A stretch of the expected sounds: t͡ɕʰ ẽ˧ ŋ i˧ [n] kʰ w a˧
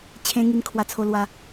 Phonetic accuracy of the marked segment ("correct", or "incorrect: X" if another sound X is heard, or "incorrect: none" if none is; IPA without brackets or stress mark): correct